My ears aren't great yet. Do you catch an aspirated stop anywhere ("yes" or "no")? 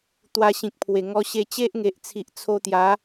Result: yes